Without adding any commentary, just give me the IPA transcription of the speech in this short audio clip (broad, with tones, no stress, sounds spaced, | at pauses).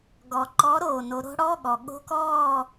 ɡ ɔ˩ ǃ ɔ˨˦ ɾ oː˧˩ n o˨˦ ɾ o̤˦˥ ɽ ɔ˧˥˧ ɠ ɔ˩ ɠ o̤˧˥˧ k ɔː˥˨